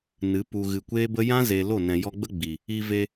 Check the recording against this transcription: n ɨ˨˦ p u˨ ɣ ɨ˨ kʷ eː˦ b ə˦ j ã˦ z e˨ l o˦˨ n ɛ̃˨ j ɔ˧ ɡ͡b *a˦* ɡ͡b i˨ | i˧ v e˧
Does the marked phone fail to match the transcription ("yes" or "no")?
yes